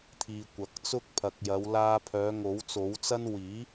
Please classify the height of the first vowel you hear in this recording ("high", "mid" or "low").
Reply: high